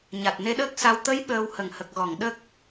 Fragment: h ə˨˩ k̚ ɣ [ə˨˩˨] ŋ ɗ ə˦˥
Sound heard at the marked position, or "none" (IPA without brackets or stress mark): ɔ˨˩˨